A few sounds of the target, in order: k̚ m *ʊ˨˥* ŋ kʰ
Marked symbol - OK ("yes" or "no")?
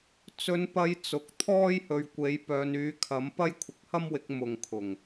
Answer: no